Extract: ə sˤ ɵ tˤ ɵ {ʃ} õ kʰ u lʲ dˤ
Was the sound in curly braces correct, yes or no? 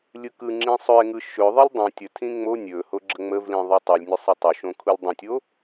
yes